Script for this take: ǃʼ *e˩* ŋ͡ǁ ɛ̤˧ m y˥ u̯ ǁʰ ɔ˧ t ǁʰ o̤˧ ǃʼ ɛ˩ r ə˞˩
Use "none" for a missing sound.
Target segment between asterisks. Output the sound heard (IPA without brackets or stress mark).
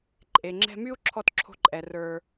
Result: e˩